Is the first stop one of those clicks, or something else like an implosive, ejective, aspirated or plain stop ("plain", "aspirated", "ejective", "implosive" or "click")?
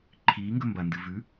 click